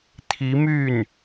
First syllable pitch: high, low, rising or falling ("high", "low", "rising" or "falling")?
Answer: rising